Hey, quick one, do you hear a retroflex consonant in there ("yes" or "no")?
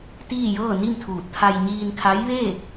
no